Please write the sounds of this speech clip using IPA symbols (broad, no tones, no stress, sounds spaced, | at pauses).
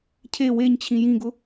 cʰ e w e ɲ t͡ɕʰ ĩ j ĩ ɡ ʊ